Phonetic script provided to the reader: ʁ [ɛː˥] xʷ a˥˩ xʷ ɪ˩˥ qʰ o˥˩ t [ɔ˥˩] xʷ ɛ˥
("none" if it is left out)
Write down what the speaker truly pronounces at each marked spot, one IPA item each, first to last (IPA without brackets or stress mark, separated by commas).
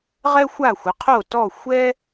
ɛ˥, ɔ˥˩